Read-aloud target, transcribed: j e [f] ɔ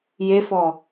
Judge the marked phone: correct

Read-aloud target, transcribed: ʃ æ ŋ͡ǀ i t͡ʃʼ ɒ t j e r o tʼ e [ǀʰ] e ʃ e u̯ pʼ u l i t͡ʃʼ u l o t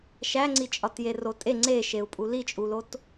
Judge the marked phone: incorrect: ŋ͡ǀ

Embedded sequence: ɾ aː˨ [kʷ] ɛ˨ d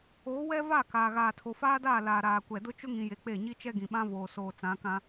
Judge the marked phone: correct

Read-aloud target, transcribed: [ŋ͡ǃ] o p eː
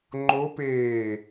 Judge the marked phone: correct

